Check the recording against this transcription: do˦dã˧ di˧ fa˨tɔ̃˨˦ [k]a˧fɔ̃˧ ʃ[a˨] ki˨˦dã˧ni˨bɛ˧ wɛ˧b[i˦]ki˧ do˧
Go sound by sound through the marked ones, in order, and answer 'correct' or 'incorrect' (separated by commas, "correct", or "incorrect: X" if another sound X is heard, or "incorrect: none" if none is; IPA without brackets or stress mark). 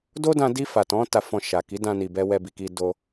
incorrect: t, correct, incorrect: i˨